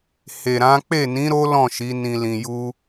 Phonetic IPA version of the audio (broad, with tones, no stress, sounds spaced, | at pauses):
h e˨ ɾ ã˨˦ k͡p e˦˨ n ĩ˨˦ ɾ o˦ l ɔ̃˦˨ ʃ i˨˦ n ĩ˧ l ĩ˧ j u˦